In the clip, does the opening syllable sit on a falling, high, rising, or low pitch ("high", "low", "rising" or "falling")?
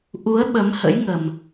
rising